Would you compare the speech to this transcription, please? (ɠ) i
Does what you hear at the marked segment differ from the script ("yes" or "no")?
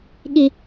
no